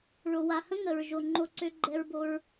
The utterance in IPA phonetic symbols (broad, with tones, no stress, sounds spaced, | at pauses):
ɭ o˨ w a˨ h ə̃˦ ŋ ə˨ ɹ ʒ o˨ ŋ͡ǃ o˧ ǀ ø˧ ɡ͡ǃ ɛ˧ ɹ b o˧ ɹ